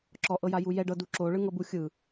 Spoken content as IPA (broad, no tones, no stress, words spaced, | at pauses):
ǁɔʔɤja jujɛ ɖɤdu ǁo ɭɯŋɤbu xʲɯ